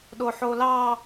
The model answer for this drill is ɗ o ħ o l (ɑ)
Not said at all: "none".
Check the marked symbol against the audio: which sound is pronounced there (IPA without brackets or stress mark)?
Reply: ɑ